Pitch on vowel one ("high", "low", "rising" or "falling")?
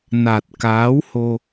low